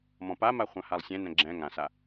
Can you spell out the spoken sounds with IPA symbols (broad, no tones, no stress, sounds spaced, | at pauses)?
m ɔ̃ p a m a χʷ ã h a lˠ sʲ ɛ̃ n ɛ̃ ɡ͡ǁ ɛ̃ ŋ ã s a